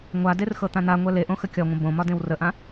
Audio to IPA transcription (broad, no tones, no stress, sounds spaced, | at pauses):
ŋʷ a d e r x ɤ t̪ ã n̪ a ŋʷ ɛ l e ʔ õ x ə kʲ ɒ ŋʷ ə̃ b õ m ɒ d ẽ w r ə ʔ ã